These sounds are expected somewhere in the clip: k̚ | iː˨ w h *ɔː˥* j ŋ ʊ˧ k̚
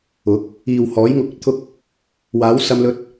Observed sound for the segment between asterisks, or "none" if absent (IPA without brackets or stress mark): ɔː˨˥